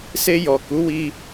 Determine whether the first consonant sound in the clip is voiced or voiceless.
voiceless